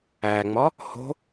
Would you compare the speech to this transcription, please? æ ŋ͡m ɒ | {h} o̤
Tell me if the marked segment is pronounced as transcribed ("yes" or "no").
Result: yes